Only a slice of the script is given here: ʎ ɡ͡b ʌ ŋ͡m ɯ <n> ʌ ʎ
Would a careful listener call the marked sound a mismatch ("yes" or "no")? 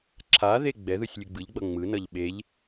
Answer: no